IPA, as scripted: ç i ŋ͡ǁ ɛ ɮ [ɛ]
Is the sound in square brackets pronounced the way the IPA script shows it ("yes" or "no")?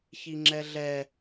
yes